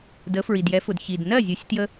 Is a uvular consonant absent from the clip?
yes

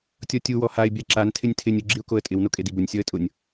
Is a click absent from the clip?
no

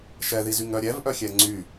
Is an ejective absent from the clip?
yes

